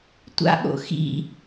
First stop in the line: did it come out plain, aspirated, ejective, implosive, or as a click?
plain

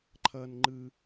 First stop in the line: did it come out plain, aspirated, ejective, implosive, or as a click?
click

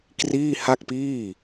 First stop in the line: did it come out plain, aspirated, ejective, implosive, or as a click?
plain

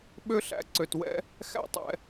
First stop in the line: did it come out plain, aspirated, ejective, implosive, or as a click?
implosive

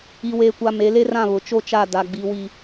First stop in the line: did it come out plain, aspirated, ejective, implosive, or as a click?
plain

